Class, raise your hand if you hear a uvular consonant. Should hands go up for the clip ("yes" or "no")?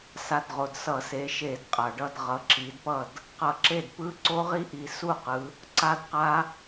yes